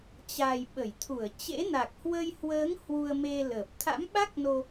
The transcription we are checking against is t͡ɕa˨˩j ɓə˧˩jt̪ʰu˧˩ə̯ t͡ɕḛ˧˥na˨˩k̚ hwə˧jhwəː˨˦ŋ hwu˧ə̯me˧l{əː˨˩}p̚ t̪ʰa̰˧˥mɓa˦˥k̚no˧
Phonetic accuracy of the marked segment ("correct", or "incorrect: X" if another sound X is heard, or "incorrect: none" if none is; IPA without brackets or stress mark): correct